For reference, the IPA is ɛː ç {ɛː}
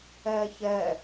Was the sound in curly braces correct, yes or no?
yes